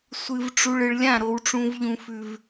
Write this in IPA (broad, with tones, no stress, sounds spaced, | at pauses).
sʷ ɨ˨ v ʈ͡ʂ u˨ ɭ ɨ˨ ɭ lʲ ã˦˨ ɾ o˦ w ʈ͡ʂ ũ˦ v ʎ ũ˦ f ʉ˦ v